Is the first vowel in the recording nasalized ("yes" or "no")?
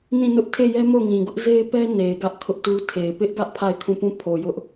yes